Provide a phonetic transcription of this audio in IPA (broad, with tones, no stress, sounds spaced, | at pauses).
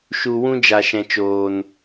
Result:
ʃ u˨ w ũ˦ d͡ʒ a˨ ʃ ɛ̃˨ t͡ʃ oː˨ n